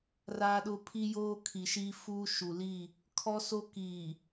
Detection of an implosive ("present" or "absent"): present